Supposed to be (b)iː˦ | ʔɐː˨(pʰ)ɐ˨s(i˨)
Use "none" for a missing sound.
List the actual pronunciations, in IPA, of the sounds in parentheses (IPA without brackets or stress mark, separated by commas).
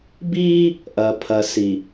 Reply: b, pʰ, i˨